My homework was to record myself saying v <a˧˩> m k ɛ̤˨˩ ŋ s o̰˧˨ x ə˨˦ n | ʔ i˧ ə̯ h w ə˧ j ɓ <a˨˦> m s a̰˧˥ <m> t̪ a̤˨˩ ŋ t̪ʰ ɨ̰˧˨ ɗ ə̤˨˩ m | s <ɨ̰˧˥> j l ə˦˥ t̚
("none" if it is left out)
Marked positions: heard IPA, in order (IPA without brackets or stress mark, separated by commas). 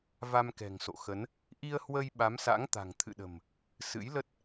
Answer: a˧, a˨˦, ŋ, ɨ̰˧˥